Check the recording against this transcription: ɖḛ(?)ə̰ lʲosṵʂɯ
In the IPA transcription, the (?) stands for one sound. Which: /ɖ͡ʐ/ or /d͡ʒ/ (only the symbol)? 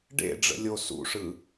ɖ͡ʐ